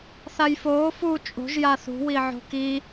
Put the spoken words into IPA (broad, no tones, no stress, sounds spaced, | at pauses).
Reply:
θ a j f oː f u t͡ʃʼ o̤ ʒ j a θ ṳ w i ʕ o̤ k i